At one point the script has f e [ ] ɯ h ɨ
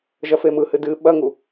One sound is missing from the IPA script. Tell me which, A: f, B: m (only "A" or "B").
B